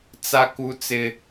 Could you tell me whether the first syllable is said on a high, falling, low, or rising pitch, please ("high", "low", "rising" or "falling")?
high